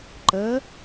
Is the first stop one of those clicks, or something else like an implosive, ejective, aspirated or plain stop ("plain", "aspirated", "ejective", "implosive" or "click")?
click